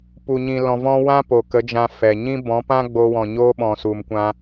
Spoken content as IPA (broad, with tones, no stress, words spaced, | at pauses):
pu˨ɲĩ˨ lɔ̃˨vɔ̃˧ wã˦po˨ kə˨˦d͡ʒã˧ fɛ˨ɲĩ˦ bɔ̃˨˦pã˦ɡ͡bo˧ wɔ̃˨ɲoː˦ɓɔ̃˨ su˨mkʷã˧